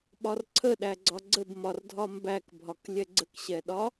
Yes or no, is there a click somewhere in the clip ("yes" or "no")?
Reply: yes